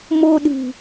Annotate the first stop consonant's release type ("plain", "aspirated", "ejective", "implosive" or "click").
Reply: implosive